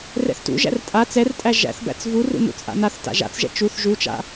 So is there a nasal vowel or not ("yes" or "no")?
no